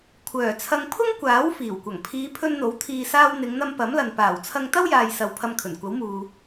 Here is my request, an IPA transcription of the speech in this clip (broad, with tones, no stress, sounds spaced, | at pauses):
kʷʰ œː˨˩ t͡sʰ ɐ˧ ŋ pʰ ʊ˥ ŋ kʷ aː˨˥ w f iː˨˩ w kʷ ɐ˨˩ ŋ pʰ iː˨˧ pʰ ɵ˧ n n̪ o˨˥ w t̪ʰ iː˨ s aː˧ w n̪ ɪ˨˧ ŋ n̪ ɐ˧ m p ɐ˨˥ m l ɐ˨ n p aː˨˩ w t͡sʰ ɐ˧ ŋ t̪ ɐ˥ w j aː˨ j s ɐ˨ w pʰ ɐ˧ m kʰ ɵ˨˩ n kʷ ɐ˨˥ w m uː˨